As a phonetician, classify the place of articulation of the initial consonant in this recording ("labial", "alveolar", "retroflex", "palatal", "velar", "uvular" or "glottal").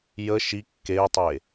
palatal